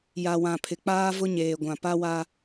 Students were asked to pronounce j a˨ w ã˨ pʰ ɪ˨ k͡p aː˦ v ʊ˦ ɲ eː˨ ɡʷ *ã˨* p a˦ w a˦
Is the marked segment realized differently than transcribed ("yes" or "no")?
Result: no